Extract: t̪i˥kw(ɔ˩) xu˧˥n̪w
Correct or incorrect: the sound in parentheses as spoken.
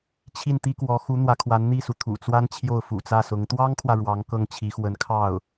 incorrect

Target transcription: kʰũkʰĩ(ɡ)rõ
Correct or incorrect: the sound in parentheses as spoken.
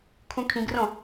correct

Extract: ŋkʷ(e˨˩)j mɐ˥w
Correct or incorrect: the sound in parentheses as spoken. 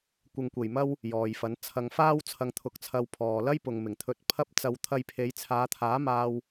correct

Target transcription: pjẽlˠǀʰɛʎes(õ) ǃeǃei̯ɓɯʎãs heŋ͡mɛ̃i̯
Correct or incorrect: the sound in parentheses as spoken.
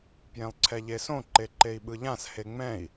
correct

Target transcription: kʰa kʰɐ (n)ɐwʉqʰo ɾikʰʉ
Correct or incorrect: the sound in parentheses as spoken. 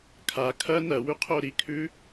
correct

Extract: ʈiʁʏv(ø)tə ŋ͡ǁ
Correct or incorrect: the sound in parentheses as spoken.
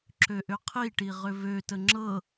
correct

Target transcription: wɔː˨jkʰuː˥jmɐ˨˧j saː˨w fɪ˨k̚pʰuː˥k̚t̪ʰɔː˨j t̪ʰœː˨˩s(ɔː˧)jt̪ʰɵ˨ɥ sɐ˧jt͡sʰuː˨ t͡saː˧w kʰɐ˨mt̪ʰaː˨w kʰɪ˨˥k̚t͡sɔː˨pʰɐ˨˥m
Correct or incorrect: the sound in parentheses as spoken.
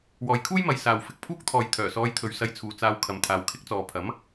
correct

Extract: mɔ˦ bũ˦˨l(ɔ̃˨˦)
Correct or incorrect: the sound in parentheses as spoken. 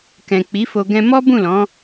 correct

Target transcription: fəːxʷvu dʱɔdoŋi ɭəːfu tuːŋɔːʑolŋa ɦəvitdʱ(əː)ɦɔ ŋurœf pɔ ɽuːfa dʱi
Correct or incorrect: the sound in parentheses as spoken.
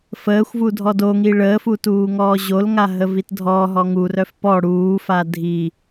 incorrect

